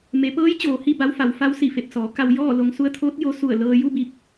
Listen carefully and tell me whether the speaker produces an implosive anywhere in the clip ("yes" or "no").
no